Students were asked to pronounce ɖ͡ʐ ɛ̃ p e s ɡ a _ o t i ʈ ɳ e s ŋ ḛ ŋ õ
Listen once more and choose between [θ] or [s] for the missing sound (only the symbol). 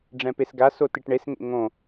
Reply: s